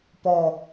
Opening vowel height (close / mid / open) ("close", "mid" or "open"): mid